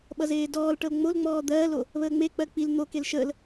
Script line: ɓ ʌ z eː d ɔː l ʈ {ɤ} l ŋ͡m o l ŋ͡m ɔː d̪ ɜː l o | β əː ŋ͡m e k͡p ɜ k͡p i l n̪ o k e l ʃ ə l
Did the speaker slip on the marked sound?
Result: no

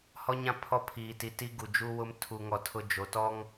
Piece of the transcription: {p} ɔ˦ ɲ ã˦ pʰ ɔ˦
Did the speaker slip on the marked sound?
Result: yes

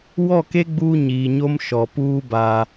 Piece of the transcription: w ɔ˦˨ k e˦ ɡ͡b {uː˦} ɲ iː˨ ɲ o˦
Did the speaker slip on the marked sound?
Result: no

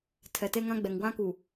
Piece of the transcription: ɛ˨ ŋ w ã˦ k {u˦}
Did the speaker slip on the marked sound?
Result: yes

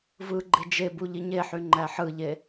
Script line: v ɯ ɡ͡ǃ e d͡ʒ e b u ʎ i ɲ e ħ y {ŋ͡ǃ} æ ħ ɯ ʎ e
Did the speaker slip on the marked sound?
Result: no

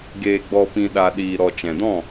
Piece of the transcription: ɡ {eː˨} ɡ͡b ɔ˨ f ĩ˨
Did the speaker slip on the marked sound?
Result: no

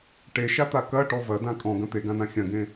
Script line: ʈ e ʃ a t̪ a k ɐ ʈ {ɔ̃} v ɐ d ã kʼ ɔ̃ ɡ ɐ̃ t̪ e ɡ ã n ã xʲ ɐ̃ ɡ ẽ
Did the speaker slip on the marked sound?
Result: yes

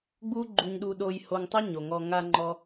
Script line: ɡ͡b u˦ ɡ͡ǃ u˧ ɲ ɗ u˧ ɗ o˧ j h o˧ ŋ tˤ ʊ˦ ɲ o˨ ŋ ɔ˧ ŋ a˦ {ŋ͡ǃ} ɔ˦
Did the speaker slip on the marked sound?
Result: no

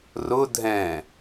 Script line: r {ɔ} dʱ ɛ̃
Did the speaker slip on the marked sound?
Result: yes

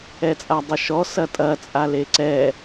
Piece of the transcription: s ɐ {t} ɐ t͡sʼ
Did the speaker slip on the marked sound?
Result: yes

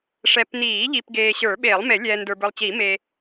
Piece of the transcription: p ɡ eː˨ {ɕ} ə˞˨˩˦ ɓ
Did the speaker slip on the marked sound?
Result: no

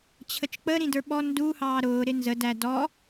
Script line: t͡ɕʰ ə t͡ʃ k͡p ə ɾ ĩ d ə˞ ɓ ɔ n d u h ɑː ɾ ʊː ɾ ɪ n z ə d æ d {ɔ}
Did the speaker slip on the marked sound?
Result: no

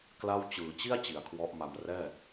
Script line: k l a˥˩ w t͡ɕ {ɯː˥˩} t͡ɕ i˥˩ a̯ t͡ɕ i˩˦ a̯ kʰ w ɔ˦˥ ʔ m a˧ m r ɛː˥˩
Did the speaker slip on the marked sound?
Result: yes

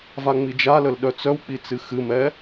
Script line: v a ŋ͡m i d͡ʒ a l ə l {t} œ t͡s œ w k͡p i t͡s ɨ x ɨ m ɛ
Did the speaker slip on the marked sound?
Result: yes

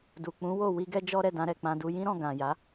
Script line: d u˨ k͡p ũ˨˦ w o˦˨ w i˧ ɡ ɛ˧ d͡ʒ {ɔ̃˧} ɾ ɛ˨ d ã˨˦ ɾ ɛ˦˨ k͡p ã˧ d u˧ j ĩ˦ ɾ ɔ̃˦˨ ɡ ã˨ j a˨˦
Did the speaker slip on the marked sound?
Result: yes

